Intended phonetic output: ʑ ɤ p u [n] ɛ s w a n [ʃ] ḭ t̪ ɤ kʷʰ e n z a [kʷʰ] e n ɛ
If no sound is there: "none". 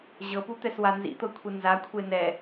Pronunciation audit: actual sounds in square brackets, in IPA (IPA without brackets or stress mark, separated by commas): t̪, z, kʷʰ